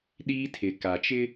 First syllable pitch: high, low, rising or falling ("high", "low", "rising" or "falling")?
high